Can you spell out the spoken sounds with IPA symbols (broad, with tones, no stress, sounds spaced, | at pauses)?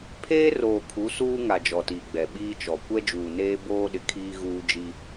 pʰ eː˦ r oː˨ kʰ u˨˦ s uː˦ ŋ a˨ d͡ʒ ɔ˨ t iː˨ ɡ͡b ɛ˨ ɓ iː˦ t͡ʃ ɔ˨ kʷ ɛ˦ d͡ʒ uː˨ n eː˦ b oː˦ ɗ ɪ˨ kʰ iː˦ ɣ uː˦ d͡ʒ i˦